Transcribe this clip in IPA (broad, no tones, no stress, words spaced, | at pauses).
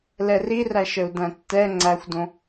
lɛriræʃəu̯ dæ̃tːɛ ŋ͡ǀæxʷdõ